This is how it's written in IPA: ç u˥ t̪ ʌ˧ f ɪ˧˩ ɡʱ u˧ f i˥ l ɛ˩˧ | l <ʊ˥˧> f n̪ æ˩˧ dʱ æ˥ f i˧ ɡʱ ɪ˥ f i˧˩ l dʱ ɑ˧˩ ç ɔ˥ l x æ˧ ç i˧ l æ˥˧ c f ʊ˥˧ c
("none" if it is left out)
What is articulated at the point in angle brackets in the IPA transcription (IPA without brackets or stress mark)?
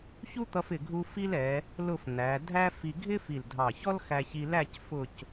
ʊ˥˧